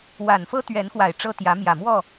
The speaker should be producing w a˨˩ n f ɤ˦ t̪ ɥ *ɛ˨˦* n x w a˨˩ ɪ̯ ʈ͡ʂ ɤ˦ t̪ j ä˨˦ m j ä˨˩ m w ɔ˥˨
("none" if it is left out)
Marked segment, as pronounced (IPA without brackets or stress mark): ɛ˨˦